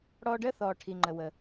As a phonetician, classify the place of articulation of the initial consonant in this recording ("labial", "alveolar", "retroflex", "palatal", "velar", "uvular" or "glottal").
retroflex